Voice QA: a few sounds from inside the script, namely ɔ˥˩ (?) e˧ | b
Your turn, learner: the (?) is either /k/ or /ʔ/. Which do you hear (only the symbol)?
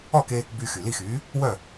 k